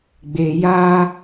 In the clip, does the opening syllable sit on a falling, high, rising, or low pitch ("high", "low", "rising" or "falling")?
low